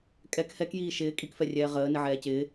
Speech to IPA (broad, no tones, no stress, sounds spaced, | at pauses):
kʼ ɛ k h ɛ k j iː ʃ ɪː kʼ i k f ɛ rʲ ɛː ʁ əː n ɪ ʕ ɛː c ɪː